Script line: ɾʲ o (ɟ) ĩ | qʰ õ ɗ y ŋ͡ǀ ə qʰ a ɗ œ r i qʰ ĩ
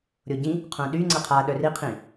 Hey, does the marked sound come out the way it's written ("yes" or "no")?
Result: yes